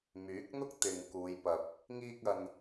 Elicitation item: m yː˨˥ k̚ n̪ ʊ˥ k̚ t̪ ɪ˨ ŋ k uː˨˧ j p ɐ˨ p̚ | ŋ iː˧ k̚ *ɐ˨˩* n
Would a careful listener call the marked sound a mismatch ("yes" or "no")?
yes